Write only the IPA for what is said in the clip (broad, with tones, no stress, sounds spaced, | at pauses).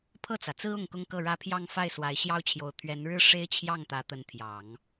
pʰ ɤ˥˩ t͡s ä˩ t͡s ɹ̩˥ ʊ˥˩ ŋ k ʊ˥ ŋ k ɤ˥˩ ɻ ä˥ pʰ j ɑ˥˧ ŋ f a˥˩ ɪ̯ s w a˧˥ ɪ̯ ɕ j ɑ˥ ʊ̯ t͡ɕʰ j o˧˥ ʊ̯ t̪ʰ ɥ ɛ˧˥ n ɻ ɻ̩˥ ʂ e˥ ɪ̯ t͡ɕʰ j ɑ˥˩ ŋ t̪ ä˧˥ t̪ ə˧˥ n t̪ʰ j ɑ˨˩˦ ŋ